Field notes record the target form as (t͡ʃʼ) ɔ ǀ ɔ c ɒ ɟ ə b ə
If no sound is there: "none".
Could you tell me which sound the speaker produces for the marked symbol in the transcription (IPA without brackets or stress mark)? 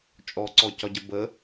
t͡ʃʼ